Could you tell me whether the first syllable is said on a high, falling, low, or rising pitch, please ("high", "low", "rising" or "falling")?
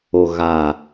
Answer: low